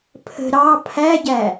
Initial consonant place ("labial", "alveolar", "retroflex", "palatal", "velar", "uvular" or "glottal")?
labial